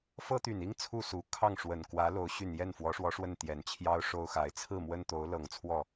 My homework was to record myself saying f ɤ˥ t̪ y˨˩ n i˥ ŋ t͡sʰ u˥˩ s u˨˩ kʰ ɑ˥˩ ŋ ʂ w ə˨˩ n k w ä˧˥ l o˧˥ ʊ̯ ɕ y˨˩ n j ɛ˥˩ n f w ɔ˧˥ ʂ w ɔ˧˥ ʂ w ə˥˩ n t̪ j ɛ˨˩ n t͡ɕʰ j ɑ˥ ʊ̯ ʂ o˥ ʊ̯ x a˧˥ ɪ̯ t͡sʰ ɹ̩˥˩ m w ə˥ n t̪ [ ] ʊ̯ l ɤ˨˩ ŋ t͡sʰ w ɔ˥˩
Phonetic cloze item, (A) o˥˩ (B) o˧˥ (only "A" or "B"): B